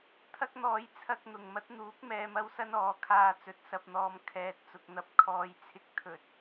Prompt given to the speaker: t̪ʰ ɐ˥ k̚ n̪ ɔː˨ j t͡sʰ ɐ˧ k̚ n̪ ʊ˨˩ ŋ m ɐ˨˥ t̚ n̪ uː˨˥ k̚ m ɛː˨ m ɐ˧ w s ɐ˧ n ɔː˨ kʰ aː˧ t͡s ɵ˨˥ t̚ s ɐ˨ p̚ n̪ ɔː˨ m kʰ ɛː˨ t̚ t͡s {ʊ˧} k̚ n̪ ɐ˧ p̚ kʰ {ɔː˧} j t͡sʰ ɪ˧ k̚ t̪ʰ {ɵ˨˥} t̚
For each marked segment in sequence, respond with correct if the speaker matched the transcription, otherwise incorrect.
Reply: incorrect, correct, incorrect

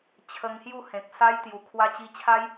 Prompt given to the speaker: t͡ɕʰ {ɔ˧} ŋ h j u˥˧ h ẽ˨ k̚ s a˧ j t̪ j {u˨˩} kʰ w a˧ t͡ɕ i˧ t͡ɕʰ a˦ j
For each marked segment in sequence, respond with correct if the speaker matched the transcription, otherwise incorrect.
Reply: incorrect, correct

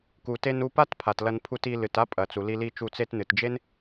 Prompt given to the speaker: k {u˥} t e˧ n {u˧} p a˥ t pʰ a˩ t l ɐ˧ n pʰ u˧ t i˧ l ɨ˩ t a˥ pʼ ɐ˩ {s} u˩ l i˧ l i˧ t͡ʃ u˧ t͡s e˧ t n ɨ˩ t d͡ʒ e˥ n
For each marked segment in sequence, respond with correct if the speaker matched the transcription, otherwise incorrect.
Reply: incorrect, correct, incorrect

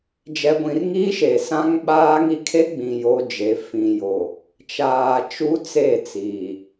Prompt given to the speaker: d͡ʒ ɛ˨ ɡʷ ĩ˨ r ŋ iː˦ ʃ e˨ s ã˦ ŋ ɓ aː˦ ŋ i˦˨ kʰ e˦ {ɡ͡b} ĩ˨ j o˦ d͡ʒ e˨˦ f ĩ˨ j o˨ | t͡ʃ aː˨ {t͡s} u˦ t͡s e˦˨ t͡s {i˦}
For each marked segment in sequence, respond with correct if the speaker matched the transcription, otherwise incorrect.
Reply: correct, incorrect, incorrect

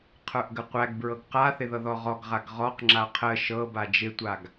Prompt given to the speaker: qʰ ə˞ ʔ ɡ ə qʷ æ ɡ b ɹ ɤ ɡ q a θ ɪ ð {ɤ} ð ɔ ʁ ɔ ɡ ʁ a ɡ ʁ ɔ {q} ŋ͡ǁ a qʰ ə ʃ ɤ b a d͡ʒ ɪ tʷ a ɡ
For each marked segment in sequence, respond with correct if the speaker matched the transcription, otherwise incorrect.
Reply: correct, correct

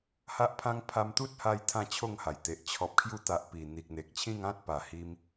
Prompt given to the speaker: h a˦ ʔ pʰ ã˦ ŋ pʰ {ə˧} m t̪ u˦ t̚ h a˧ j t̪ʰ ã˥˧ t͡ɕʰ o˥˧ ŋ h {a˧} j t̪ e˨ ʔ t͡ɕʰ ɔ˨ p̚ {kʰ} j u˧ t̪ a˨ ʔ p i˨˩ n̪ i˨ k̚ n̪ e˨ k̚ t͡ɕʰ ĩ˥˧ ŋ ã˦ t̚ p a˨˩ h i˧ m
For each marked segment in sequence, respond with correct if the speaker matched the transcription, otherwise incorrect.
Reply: incorrect, incorrect, correct

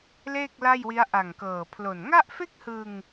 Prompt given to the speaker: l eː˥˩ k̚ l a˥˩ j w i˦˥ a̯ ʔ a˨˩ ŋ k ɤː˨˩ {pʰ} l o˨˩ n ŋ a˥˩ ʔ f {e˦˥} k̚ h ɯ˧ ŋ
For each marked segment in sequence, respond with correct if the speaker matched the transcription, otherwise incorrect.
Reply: correct, incorrect

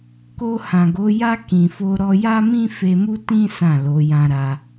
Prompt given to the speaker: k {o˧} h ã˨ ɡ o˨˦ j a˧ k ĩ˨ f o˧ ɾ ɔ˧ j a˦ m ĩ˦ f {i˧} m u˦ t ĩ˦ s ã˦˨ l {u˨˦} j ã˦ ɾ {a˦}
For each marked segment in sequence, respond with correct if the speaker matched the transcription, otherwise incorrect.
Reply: correct, incorrect, incorrect, correct

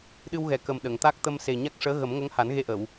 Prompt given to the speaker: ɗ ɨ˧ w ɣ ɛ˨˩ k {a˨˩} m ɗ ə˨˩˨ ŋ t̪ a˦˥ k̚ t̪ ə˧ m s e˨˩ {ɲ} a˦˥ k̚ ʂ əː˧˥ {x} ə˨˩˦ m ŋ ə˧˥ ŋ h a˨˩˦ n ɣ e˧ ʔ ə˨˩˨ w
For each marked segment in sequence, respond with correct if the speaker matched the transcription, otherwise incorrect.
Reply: incorrect, correct, incorrect

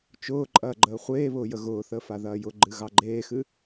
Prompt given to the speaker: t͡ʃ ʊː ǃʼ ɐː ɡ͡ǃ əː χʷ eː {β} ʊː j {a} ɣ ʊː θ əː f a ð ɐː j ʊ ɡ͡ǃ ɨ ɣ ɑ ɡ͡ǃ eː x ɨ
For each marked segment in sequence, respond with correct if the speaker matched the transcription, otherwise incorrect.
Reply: correct, incorrect

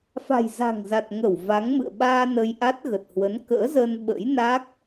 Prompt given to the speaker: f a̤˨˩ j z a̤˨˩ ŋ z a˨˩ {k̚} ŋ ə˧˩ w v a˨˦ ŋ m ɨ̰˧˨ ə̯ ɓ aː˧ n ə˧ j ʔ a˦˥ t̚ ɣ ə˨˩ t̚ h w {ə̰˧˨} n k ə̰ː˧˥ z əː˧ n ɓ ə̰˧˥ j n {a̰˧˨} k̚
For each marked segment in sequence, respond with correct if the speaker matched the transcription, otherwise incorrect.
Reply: incorrect, incorrect, incorrect

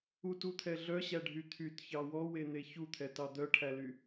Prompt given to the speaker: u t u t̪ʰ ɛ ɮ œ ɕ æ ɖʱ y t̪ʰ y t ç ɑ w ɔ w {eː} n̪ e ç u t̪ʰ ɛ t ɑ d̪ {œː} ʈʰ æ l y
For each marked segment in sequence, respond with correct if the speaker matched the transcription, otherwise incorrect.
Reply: incorrect, incorrect

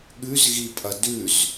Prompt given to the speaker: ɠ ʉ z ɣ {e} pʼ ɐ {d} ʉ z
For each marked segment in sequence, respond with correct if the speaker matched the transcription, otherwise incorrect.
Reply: incorrect, correct

